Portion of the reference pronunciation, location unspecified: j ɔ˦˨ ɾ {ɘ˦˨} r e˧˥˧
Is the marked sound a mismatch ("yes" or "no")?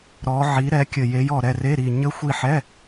yes